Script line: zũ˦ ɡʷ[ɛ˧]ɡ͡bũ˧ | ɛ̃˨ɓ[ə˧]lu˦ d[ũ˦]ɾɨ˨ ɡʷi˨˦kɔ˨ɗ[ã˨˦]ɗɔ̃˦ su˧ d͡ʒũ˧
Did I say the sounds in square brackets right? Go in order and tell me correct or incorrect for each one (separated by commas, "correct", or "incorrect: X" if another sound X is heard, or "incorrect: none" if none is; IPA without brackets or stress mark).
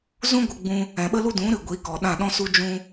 incorrect: ə˧, incorrect: ə˦, incorrect: ũ˨˦, incorrect: ã˦˨